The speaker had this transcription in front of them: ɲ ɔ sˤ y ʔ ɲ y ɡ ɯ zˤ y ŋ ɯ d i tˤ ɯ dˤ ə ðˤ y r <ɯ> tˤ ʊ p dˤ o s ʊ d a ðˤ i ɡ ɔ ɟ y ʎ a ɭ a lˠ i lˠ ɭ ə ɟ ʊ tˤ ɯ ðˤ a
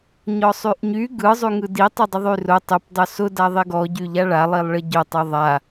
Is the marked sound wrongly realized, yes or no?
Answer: yes